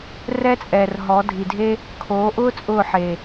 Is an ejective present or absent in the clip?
present